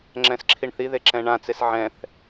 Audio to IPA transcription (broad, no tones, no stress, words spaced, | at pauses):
ŋ͡ǁɛ̃sǁʰiɳθiðe ǁɛ̃ɳãt͡ses ʕɛ̃θ